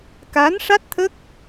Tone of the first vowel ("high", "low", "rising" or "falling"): rising